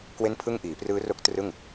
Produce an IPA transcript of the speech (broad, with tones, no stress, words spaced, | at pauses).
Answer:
kwe˥˩npʰɯ˥˩ŋ ʔiː˩˦prɯː˦˥ro˦˥k̚ trɯ˥˩ŋ